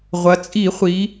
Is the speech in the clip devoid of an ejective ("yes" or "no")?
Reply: no